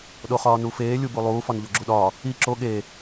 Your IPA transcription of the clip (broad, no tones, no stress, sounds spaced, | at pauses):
ɗ o χ ɒː n u f eː lʲ u b u lˠ uː f ɒ n ʎ o ɡ͡ǁ u ɗ ɒ | i ǁ o ɠ e